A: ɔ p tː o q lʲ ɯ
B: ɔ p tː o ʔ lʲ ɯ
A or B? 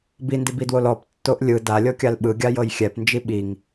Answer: B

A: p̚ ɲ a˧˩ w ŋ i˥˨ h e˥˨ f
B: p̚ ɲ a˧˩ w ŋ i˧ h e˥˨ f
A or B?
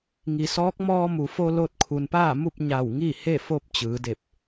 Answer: A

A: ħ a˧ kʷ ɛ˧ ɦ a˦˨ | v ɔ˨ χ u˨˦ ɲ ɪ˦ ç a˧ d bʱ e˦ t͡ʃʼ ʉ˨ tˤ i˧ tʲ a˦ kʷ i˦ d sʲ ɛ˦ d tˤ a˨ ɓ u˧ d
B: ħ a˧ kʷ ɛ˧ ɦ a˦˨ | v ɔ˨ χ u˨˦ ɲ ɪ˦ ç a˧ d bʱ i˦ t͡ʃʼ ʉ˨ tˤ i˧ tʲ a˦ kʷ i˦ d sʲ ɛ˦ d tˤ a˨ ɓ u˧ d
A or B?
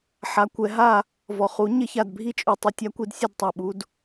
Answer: B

